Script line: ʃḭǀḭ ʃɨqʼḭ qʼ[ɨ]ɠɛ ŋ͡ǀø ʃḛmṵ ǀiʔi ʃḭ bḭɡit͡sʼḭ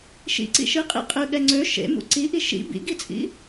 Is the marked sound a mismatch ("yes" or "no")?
no